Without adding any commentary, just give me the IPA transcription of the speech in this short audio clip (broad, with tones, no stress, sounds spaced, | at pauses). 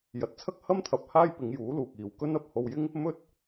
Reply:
j ɐ˨ t̚ t͡sʰ ɐ˥ k̚ h ɐ˥ m t̪ʰ ɐ˨ p̚ h aː˥ j p ɪ˨˧ ŋ j uː˨˥ l uː˨ k̚ iː˨ w k ɵ˥ n ɐ˨ p̚ h o˧ w j ɪ˥ ŋ | m ɵ˥ t̚